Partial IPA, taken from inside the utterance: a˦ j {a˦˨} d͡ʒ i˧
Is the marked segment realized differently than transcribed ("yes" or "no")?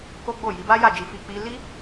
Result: no